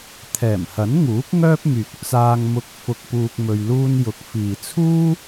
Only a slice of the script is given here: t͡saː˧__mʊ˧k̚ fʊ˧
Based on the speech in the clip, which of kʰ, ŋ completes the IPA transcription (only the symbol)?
ŋ